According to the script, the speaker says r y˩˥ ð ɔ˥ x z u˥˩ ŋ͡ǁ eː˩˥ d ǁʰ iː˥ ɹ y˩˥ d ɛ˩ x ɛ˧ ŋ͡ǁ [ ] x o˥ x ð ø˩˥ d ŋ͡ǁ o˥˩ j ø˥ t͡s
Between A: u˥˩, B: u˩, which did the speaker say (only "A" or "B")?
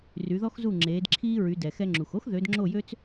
B